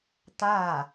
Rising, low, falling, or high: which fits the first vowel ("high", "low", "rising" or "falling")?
falling